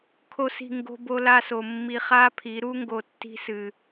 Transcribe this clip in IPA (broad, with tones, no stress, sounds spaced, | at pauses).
kʰ o˦ s i̤˦˨ ŋ ɡ o̤˧ b o˧ l a˧ s o˨ mː i˧ χ a˦ pʰ i˨˦ ɾ u˦ ŋ ɡ o˧ tː i̤˦ s ɨ˧